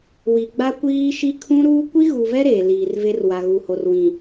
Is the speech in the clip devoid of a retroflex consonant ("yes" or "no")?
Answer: yes